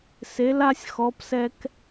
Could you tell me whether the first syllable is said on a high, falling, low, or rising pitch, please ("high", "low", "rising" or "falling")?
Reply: rising